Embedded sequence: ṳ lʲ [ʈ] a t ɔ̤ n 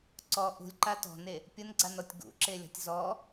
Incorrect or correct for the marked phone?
incorrect: ǃ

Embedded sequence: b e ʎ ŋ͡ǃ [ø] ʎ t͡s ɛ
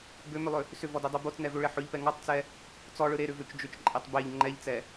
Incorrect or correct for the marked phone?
incorrect: ɛ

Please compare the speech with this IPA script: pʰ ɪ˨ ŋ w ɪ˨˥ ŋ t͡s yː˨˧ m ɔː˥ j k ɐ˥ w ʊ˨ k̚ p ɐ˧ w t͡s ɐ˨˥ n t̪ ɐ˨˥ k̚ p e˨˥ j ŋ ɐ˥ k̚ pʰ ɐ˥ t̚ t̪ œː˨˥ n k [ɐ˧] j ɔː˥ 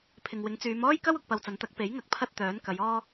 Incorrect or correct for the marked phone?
incorrect: ɐ˨˧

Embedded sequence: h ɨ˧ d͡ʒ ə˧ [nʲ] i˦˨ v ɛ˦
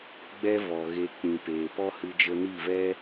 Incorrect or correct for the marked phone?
incorrect: n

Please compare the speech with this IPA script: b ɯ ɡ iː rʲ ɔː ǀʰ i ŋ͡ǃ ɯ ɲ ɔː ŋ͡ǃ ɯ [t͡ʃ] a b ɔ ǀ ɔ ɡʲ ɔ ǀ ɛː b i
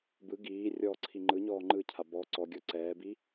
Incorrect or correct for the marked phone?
incorrect: cʰ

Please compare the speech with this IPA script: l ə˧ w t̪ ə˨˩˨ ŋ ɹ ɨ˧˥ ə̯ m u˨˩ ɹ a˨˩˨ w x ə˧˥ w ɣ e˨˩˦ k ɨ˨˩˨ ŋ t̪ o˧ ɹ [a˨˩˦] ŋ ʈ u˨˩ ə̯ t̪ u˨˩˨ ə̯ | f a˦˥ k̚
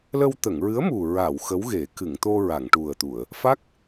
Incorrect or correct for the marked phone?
incorrect: a˨˩˨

